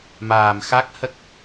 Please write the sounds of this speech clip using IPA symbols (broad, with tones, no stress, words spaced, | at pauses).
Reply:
maː˨˩mxa˦˥k̚ hə˦˥k̚